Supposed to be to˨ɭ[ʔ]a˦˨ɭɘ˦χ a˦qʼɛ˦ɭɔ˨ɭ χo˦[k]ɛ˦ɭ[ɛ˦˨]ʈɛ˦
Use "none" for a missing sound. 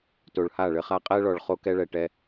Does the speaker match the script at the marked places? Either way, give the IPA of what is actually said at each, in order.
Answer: h, k, ɛ˨

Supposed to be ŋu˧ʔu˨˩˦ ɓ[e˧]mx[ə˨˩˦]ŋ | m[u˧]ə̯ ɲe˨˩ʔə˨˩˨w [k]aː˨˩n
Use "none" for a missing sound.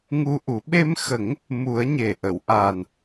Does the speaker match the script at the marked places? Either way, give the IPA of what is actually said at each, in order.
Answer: e˧, ə˨˩˦, u˨˩˦, ʔ

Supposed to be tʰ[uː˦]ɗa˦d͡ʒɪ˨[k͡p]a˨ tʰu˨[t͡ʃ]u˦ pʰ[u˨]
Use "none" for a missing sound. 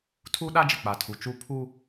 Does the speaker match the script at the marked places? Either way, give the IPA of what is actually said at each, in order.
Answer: uː˦, k͡p, t͡ʃ, u˦

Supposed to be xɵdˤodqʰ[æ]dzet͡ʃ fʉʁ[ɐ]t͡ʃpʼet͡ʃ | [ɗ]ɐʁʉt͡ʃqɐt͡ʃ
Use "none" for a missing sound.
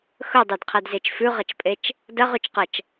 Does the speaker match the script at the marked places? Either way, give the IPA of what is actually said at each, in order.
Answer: a, ɐ, d

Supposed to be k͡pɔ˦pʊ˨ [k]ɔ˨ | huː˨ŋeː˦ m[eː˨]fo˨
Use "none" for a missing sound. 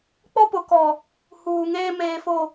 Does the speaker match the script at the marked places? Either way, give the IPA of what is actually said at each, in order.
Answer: k, eː˨

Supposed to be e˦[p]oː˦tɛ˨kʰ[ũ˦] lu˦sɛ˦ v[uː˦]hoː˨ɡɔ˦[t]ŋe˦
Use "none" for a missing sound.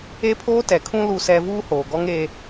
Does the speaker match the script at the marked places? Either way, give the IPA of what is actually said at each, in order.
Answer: pʰ, ũ˦, uː˦, none

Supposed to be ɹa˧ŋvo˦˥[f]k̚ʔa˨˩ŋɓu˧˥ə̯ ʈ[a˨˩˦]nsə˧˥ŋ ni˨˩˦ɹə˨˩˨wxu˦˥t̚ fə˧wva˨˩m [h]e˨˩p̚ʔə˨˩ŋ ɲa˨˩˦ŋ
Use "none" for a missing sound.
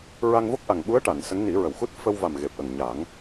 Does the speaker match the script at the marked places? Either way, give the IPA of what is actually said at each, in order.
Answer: none, a˨˩˨, ɣ

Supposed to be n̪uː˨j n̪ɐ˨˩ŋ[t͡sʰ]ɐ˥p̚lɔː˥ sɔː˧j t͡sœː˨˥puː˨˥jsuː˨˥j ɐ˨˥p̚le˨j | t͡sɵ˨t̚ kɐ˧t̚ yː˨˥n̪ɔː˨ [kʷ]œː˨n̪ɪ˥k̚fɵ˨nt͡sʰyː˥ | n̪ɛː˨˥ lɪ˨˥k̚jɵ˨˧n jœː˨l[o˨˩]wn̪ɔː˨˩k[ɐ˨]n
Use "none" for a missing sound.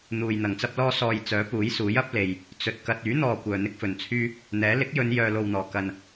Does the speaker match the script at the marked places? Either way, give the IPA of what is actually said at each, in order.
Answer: t͡s, kʷ, o˨, ɐ˨

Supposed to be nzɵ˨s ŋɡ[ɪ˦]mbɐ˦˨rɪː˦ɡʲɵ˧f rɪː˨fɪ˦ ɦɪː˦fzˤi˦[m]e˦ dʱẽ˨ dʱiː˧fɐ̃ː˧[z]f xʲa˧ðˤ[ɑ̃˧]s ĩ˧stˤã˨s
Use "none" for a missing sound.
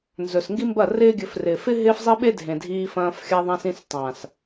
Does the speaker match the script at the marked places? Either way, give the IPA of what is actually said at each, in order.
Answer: i˦, ɓ, none, ã˧

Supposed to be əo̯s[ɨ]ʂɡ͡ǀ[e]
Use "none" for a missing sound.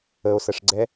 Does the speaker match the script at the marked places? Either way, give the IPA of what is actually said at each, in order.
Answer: ə, ɛ

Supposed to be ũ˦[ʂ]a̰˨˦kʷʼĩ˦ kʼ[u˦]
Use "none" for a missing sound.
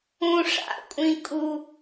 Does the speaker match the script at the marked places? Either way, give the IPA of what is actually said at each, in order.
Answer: ʂ, u˦

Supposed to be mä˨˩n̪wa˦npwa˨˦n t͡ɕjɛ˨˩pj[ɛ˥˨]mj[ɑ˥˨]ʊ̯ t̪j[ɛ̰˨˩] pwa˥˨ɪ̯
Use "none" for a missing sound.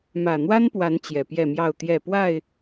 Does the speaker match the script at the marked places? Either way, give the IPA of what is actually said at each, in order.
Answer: ɛ˥˨, ɑ˥˨, ɛ˥˨

